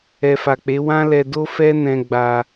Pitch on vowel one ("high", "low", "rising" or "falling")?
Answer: low